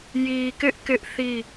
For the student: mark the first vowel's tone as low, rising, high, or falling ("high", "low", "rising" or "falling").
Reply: low